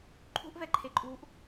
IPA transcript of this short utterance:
ǃʰ ṳ ʔ v ɛ ǃʰ e ǃʼ uː ʔ

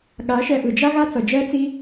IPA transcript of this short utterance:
ɠ a˨˦ ʃ ɛ˧ ʔ ɯ˨ d͡ʒ a˦ ɣ a˦ t͡s ʌ˨ d͡ʒ ɛ˦ t͡s i˦

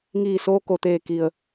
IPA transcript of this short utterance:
ŋ iː˧˩ s oː˧ k o˩ t̪ eː˧˩ k i˩ ə̯

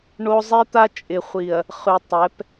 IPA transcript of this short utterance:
ɳ o˦ zˤ i˦ t̪ a˦ t͡ʃʼ ɪ˨ χʷ i˨ ɐ̯ | χ ʉ˨ tˤ ɛ˨˦ p

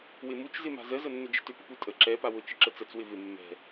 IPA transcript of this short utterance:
w ɪ m u t͡ʃ z ɪ m a̤ z ə z ə nː ʏ d͡ʒ ə̤ t ʏ p ə p u tʼ ə ǁ ɛ p a w ʊ t͡ʃ ɪ ǁ ə t͡s ə t͡s w ɪ v ɪ mː ɛ̤

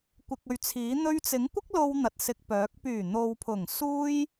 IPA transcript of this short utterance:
kʷ ɪ˨ k̚ ɵ˨ ɥ t͡sʰ iː˨˥ n̪ ɵ˧ ɥ t͡s ɪ˨˥ ŋ kʷ ɪ˥ k̚ l o˧ w n̪ ɐ˨ t̚ s ɪ˧ k̚ p œː˨˥ k̚ p yː˨˩ n̪ o˨ w pʰ ʊ˨˩ ŋ s uː˥ j

